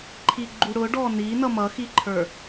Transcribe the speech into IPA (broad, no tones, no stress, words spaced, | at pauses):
ǃʰiɡ͡ǃuɽʊɖɔ ninʌ mʌxiǃʰə˞